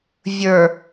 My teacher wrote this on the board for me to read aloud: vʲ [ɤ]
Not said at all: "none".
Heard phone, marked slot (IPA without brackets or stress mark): ə˞